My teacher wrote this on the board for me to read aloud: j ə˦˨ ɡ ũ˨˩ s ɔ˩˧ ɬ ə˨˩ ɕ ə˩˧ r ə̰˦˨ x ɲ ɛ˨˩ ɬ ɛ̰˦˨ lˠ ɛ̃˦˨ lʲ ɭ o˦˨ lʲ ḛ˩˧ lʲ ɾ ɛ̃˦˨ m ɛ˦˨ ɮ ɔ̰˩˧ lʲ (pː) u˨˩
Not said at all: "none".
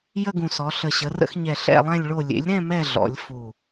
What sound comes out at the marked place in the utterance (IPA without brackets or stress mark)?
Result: f